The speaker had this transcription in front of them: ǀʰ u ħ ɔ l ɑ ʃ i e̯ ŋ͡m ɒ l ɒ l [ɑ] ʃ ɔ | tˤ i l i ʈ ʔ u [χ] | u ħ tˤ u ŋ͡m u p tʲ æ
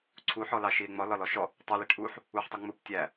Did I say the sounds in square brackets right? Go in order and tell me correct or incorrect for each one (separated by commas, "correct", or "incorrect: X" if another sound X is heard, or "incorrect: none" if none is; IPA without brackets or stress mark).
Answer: incorrect: ɔ, incorrect: ħ